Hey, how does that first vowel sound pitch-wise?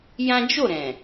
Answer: high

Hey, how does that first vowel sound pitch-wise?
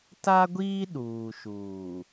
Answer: high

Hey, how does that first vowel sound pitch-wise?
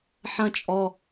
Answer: low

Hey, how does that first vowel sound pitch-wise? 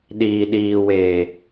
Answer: low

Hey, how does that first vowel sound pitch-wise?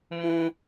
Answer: high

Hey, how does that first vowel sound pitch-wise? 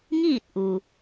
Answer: falling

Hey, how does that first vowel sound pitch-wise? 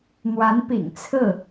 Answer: rising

